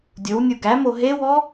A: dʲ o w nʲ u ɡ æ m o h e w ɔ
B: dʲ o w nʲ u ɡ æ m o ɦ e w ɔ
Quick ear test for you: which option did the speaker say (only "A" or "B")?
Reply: B